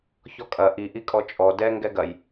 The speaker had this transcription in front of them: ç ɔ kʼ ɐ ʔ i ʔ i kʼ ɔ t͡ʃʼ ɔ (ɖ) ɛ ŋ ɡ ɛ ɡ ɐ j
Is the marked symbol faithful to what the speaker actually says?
no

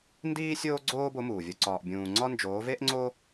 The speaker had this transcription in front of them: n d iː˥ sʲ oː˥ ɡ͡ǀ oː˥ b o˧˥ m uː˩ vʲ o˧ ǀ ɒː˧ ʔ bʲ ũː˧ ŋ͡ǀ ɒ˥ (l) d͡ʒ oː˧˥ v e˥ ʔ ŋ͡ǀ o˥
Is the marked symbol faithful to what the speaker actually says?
no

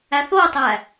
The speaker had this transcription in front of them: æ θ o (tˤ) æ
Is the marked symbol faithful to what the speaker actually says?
yes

